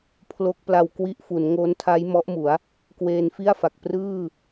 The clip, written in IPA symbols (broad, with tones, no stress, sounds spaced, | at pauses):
pʰ l o˦˥ k̚ p l a˧ w k w i˦˥ ʔ f u˩˦ n ŋ o˦˥ n tʰ a˦˥ j m ɔ˦˥ ʔ m u˩˦ a̯ | k w eː˧ n f i˥˩ a̯ f a˨˩ k̚ p r ɯː˥˩